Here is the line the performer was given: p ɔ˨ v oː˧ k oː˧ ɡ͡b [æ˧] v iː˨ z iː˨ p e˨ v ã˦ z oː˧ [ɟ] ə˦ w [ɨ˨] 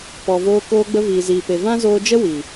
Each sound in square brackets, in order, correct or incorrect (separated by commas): incorrect, incorrect, incorrect